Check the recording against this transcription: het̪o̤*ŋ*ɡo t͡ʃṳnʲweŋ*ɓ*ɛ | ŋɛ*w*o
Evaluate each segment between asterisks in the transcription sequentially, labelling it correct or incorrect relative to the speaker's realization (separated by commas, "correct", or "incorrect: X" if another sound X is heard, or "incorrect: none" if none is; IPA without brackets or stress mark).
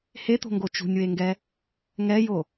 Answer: correct, incorrect: ɡ, incorrect: j